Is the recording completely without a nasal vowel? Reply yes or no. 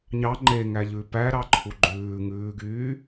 yes